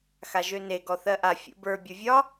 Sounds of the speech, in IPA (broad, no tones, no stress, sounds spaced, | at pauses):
x a ʒ ø n e ɡ ɔ θ ɜ ʔ a fʲ ṵ b ə˞ bʲ o vʲ ɒ